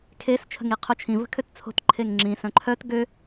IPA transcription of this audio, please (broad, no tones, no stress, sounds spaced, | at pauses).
kʰ e s t͡ʃʰ ə̤ ŋ i qʰ o t͡ʃʰ ĩ v ə̤ kʰ ø t t͡sʰ o̤ t ǃʰ e ŋ ŋ͡ǁ ĩ s œ̃ ǃʰ œ t ɡ ø